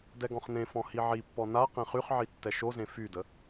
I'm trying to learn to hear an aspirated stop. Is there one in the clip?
no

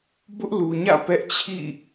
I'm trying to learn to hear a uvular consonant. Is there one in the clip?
no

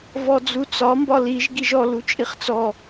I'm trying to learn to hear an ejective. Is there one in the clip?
yes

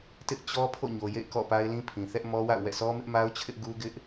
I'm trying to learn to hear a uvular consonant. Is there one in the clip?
no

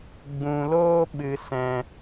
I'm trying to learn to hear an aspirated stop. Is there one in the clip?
no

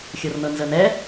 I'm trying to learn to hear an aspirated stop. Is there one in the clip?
no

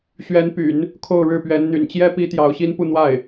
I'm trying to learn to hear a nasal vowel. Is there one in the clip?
no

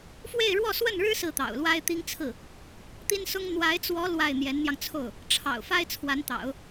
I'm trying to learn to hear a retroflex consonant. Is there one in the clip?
yes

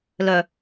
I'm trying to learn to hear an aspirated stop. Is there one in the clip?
no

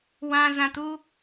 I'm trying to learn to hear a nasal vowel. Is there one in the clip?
yes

